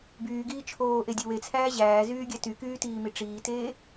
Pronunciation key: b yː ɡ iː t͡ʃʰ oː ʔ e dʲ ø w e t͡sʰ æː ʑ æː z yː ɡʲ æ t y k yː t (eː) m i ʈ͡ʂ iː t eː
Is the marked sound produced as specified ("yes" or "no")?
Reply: no